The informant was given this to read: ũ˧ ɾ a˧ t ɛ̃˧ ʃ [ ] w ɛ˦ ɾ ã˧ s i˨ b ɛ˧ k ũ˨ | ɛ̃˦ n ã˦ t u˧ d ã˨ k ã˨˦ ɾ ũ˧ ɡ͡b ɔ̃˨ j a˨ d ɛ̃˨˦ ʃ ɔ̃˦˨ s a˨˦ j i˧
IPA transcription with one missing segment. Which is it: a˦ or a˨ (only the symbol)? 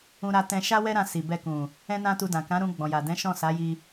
a˦